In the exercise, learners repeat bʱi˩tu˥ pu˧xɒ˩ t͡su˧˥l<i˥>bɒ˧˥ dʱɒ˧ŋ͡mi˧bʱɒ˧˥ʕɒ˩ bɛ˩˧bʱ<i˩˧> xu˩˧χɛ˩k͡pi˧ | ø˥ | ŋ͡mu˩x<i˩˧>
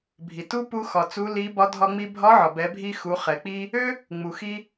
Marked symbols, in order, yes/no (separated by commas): no, no, no